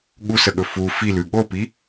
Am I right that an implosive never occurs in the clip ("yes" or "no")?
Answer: no